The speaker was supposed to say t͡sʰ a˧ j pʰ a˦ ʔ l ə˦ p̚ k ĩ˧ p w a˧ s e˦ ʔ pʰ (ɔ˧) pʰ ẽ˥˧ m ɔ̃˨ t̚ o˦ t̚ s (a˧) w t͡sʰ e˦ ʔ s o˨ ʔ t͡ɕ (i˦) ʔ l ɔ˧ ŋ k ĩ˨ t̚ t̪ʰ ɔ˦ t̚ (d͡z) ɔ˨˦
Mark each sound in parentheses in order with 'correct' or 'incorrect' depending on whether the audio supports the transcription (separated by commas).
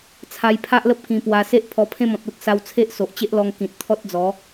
correct, correct, incorrect, correct